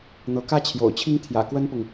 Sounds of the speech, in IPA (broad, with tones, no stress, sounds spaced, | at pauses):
n̪ ɤ˧˥ k ä˥ t͡ɕʰ j o̰˨˩ ʊ̯ t͡ɕʰ i˥ ŋ t̪ʰ j ä̰˨˩ k w ə˥ n p ʊ˨ ŋ